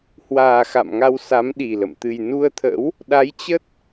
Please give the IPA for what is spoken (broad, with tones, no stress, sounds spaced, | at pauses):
h w aː˨˩ x a̰˧˨ m ŋ a˧ w s a˨˦ m ɗ i˨˩ l ə̰˧˨ m t̪ ɨ˨˩ j n u˧ ə̯ t̪ʰ ə̰˧˥ w | ɗ a˨˦ j t͡ɕ ə˦˥ t̚